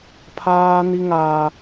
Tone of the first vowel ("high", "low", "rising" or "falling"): high